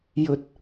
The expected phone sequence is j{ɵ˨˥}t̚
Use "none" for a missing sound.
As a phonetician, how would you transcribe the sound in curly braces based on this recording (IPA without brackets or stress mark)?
ɵ˧